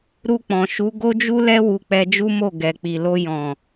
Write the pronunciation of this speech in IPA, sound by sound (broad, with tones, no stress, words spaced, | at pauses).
ɾu˧k͡pɔ̃˨ʃu˨˦ ɡo˦d͡ʒu˦lɛ˦ wu˧k͡pɛ˧d͡ʒu˦mo˦˨ ɡɛ˨k͡pi˨lo˧jɔ̃˨